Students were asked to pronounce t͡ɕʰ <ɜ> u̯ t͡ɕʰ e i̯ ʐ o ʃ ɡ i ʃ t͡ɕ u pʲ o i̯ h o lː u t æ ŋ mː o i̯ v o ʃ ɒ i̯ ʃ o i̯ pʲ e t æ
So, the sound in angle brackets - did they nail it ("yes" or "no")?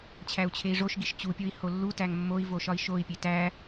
no